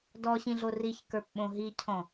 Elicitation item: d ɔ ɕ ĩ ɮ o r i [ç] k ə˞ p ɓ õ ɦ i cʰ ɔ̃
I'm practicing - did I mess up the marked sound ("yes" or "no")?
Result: no